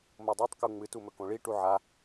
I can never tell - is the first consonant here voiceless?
no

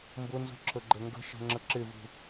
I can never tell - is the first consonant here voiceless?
no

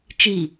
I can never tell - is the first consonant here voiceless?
yes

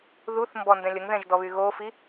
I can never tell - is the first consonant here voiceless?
no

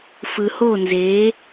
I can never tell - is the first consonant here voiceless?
yes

